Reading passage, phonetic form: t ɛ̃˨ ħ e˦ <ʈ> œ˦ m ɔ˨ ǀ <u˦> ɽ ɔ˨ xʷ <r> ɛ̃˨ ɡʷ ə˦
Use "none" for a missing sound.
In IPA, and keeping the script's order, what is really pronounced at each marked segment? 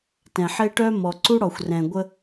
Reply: ʈ, u˦, r

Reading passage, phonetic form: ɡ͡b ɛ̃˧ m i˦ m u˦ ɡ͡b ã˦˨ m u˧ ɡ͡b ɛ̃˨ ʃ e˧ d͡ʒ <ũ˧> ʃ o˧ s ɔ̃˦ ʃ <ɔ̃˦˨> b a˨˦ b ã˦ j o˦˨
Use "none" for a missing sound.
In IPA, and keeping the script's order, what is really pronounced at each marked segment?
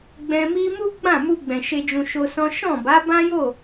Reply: ũ˧, ɔ̃˦˨

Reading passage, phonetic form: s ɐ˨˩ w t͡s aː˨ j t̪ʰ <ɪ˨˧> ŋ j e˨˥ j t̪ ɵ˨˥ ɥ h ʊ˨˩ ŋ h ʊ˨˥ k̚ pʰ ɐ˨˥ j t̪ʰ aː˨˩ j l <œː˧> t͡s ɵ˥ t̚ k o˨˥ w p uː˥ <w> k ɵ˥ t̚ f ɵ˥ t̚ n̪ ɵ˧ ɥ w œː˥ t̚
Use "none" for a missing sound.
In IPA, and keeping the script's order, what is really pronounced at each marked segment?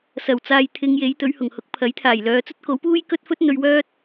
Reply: ɪ˨˧, œː˨˧, j

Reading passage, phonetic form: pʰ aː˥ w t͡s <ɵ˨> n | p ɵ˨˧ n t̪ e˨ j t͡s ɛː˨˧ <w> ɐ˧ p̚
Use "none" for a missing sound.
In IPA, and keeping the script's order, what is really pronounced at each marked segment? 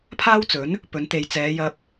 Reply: ɵ˨˥, j

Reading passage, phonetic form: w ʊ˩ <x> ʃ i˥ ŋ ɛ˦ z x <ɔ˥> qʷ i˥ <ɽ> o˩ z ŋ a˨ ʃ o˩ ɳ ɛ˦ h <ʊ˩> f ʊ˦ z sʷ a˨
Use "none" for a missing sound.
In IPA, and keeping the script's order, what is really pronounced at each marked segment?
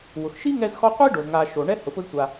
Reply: x, ɔ˦, ɖ, ʊ˩

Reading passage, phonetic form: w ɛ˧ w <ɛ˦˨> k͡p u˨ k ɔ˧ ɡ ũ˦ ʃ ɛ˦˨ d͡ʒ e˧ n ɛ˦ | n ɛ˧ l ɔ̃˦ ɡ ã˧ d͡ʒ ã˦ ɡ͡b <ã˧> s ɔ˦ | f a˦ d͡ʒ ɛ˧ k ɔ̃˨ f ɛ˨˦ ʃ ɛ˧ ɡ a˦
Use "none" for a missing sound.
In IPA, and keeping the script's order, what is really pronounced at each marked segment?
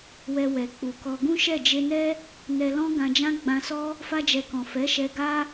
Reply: ɛ˨, ã˧

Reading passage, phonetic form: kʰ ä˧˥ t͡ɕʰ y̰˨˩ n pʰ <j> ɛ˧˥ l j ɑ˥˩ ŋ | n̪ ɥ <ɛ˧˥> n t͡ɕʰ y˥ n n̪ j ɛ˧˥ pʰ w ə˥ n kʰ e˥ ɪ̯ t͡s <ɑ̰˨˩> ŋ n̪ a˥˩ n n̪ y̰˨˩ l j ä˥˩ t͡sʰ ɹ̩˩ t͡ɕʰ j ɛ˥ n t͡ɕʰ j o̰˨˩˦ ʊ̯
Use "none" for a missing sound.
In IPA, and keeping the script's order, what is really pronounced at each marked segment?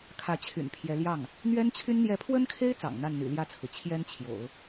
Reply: j, ɛ˥, ɑ̰˨˩

